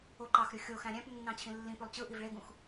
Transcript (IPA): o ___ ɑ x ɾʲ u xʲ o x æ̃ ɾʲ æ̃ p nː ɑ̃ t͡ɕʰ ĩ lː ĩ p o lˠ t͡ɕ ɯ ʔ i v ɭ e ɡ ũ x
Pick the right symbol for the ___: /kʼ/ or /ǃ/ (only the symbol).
ǃ